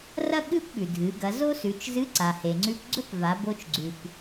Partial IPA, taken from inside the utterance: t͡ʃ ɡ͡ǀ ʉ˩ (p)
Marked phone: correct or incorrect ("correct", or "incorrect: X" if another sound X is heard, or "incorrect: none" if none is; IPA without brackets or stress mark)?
correct